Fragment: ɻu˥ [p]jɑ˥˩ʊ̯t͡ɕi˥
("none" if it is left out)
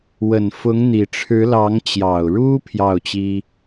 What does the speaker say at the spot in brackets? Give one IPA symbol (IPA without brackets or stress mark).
pʰ